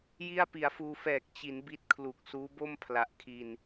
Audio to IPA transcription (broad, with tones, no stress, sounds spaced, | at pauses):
j i˥˩ a̯ p i˩˦ a̯ f uː˧ f ɛː˨˩ k̚ t͡ɕ i˩˦ n b i˦˥ t̚ kʰ l u˨˩ k̚ s uː˦˥ b o˥˩ m pʰ l a˨˩ ʔ kʰ i˧ n